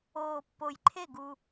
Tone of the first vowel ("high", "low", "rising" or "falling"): low